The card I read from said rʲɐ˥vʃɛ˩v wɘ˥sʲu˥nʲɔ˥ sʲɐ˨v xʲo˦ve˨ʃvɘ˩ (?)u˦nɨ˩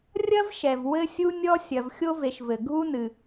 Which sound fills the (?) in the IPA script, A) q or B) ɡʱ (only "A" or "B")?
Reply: B